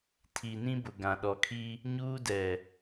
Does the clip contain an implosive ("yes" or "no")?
yes